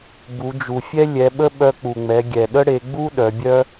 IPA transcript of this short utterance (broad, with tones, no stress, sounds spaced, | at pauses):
b u˩˧ d͡ʒ u˩ fʲ ɛ˥ lʲ ɛ˩˧ ɓ ə˥ ɓ œ˧ k͡p u˩ ŋ͡m ɛ˩˧ ɡʲ ɛ˩ ɗ ə˥ ɽ e˩˧ ɡ͡b u˥ ɗ œ˩˧ bʲ œ˥